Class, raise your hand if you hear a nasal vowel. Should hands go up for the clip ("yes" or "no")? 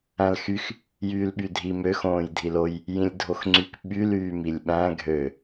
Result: yes